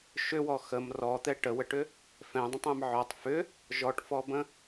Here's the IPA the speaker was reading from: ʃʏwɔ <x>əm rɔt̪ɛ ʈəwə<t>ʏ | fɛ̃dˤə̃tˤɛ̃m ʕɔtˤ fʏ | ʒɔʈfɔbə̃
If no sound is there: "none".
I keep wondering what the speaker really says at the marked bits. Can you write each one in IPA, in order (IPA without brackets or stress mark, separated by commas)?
x, ʈ